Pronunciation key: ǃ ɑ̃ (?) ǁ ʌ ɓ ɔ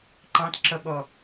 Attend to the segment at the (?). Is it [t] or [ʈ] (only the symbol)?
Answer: t